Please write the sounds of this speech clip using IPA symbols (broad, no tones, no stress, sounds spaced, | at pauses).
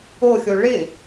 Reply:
o xʲ o ɭ ɪ